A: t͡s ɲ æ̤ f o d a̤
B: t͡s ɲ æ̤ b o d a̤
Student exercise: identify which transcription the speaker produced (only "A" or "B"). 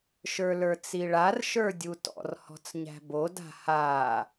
B